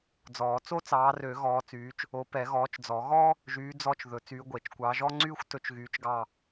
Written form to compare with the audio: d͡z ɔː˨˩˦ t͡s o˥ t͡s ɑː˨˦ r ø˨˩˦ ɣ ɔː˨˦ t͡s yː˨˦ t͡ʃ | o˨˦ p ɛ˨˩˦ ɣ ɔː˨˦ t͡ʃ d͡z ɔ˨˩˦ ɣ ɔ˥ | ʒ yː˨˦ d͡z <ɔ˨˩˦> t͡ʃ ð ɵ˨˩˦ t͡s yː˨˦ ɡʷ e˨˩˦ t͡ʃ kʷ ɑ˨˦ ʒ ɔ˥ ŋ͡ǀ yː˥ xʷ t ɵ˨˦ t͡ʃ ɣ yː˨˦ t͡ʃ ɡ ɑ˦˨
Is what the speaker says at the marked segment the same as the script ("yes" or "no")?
no